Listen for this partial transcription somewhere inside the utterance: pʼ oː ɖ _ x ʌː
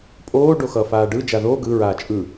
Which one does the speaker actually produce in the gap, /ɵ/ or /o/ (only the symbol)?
o